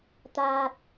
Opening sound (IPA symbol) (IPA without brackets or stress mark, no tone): t̪